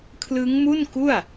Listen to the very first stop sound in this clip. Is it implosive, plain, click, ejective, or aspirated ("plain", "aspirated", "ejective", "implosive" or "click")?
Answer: aspirated